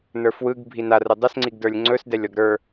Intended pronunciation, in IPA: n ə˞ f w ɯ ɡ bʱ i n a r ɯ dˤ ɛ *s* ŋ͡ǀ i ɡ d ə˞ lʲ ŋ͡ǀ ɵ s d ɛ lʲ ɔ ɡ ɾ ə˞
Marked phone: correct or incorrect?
correct